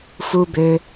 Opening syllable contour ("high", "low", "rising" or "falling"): low